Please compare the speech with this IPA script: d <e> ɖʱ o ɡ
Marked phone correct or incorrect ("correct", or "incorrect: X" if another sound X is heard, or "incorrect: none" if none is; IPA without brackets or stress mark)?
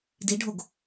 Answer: incorrect: i